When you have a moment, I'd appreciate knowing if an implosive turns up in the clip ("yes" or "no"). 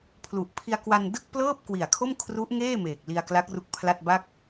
no